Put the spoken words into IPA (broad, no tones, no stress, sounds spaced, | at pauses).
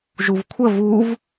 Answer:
ʒ u v kʷʰ ə v u v